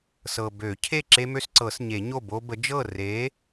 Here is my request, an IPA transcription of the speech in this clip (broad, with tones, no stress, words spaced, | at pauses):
sɤ˨bø˨˩˦cʰe˥˩ ǁe˦mø˦sǀɤ˨˩˦sɲe˨˩˦ ɲo˥˩bo˦bə˨˥ d͡ʒɤ˥˩re˨˥